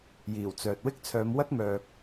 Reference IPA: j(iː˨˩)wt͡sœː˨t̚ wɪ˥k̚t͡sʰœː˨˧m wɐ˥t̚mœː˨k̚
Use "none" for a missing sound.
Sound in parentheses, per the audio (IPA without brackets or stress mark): iː˨˩